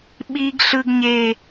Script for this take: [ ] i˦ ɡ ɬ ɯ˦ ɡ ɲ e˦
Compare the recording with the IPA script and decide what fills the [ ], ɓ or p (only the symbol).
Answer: ɓ